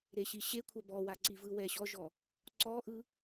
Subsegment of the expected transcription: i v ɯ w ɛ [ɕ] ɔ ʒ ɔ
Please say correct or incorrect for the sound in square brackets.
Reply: correct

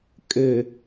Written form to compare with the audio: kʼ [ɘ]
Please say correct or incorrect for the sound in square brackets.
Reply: correct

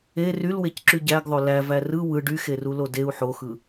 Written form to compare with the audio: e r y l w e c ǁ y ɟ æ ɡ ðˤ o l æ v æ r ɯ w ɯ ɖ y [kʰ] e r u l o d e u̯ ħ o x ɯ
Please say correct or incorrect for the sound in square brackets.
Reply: incorrect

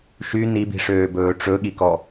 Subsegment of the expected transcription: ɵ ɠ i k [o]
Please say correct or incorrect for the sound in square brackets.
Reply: incorrect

